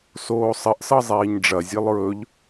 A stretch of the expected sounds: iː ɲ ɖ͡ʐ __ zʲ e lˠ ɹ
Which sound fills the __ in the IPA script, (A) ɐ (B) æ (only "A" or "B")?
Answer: A